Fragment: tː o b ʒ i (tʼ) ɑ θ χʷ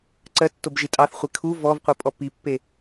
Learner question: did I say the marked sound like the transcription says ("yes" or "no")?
yes